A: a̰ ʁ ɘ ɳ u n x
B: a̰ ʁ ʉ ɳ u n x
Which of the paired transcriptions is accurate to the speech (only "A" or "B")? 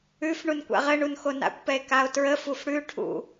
A